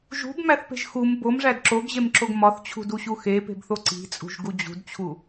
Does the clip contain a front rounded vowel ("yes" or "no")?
no